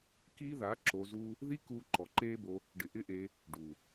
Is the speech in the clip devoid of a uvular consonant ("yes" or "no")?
yes